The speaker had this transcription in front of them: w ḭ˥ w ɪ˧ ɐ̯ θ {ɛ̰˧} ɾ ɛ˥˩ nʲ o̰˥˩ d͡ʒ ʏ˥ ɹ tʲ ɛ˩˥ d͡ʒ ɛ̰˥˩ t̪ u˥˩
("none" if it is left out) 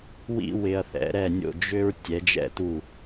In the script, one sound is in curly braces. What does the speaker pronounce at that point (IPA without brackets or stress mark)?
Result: ɛ̰˩˥